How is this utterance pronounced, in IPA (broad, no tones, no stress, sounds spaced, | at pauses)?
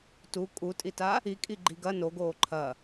t u kʼ u tʼ i t a | i kʼ i ɡ͡ǃ i ɡ ɐ n o ɡ oː ǃʰ ɐ